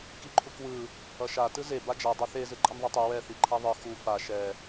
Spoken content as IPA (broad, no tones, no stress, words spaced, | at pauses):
kiǃʰukwɯ | ʌʃa tɯze bad͡ʒa dˤeθe zɯǃʼʌnðˤɛtˤu wɛ θiǃʰaðˤɯ xu fa ʃɛ